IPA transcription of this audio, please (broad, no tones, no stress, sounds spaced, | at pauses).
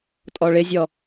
tʼ ɔ ɭ ɪ zʲ ɔ